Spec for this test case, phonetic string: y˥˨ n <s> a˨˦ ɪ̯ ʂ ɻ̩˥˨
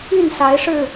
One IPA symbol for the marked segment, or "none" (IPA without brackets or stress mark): s